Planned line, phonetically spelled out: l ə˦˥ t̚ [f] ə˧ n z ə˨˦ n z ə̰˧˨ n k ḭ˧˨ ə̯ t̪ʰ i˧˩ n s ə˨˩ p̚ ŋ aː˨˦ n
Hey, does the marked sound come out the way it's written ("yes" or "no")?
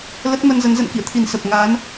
no